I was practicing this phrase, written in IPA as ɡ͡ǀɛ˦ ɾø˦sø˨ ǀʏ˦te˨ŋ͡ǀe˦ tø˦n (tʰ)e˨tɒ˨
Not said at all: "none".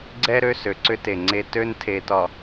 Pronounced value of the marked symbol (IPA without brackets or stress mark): tʰ